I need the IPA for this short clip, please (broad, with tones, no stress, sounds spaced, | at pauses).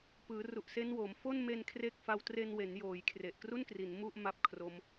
p ɯː˩˦ r u˨˩ ʔ s e˦˥ n w o˩˦ m f o˥˩ n m e˧ n kʰ r e˥˩ k̚ f a˦˥ w t r e˧ n w e˩˦ n j oː˩˦ j kʰ r e˨˩ ʔ k r u˥˩ n k r i˩˦ n m u˥˩ ʔ m a˦˥ p̚ kʰ r o˦˥ m